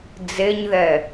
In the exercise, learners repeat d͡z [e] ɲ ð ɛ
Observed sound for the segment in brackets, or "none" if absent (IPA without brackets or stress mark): e